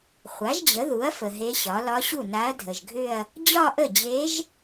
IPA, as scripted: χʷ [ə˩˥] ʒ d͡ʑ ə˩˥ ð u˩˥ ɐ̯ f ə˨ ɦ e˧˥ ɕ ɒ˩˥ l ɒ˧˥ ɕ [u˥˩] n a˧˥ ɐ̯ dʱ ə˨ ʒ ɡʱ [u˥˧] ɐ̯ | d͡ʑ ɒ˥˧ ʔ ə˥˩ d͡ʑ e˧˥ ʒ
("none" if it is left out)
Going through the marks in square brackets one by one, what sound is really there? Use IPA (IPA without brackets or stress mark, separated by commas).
a˩˥, u˥˩, ʏ˥˧